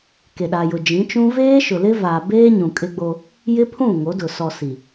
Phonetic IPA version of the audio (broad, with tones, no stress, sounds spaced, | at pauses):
k e˨ ɗ a˨ j ʊ˨ d͡ʒ ĩ˨˦ t͡ʃ ũ˦ v eː˦ ʃ ʊ˨ l ɪ˦ v a˨ b eː˦ ɲ ũ˨ kʼ ɪ˦ ɡ͡b o˦ | j ɪ˦ pʰ ũ˦˨ ŋ o˨˦ d ʊ˨ s ɔ˨ s i˨